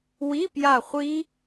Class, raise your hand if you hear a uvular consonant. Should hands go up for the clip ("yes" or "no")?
yes